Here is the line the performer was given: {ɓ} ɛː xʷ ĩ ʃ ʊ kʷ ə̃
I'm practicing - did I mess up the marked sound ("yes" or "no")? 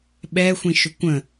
no